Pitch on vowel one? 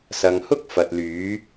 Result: low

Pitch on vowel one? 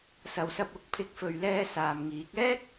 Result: low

